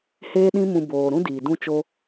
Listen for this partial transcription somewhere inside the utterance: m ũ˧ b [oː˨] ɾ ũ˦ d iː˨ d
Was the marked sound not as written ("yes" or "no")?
no